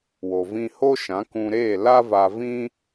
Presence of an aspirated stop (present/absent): absent